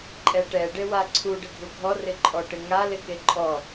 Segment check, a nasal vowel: absent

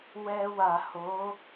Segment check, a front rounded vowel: absent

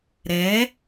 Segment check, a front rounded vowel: absent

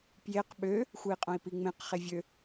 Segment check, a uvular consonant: present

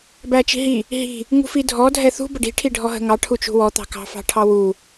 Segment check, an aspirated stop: present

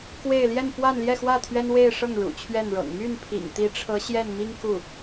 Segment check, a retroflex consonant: present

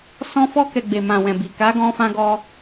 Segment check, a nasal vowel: present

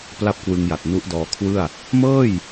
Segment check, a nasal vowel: absent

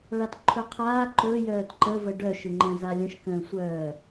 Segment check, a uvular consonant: present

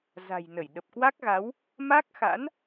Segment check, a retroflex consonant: absent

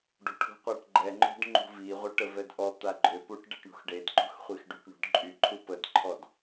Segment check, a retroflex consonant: present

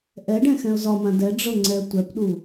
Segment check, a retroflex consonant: present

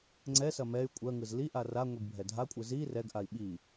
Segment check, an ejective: present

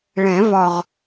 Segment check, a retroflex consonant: present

